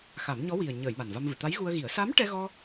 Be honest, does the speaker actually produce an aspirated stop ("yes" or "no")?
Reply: no